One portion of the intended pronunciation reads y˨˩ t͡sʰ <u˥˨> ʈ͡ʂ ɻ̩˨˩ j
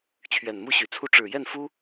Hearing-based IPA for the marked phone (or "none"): u˥˨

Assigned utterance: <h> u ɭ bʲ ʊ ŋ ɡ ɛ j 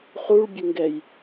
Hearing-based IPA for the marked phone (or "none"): χ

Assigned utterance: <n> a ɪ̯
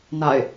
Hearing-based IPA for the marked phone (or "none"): n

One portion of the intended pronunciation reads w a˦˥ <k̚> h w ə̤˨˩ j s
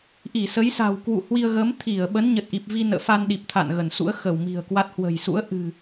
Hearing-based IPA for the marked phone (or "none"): t̚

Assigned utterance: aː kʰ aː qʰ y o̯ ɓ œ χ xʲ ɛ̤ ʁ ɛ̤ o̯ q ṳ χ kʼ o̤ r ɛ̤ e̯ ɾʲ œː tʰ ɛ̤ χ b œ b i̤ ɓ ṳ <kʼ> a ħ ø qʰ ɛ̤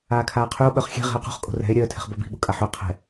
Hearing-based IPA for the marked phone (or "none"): kʼ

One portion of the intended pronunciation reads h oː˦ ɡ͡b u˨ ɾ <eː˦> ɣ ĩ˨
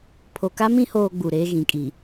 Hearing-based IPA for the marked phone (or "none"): eː˦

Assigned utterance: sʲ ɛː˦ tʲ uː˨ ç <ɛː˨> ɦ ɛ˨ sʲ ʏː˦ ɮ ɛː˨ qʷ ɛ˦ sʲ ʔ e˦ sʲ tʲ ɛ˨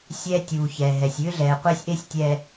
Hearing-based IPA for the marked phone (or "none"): ɛː˨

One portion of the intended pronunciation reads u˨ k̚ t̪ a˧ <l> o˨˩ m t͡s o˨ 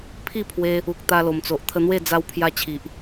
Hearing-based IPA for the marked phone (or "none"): l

